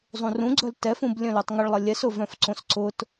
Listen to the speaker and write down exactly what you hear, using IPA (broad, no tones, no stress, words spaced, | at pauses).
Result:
zˤũrũɡ͡ǀœl tɛfũb lʲœ̃lutˤŋʊɭlˠɐ lʲɛsʊvœ̃fǀõs ǀʊt